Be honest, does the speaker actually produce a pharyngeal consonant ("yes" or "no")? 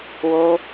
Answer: no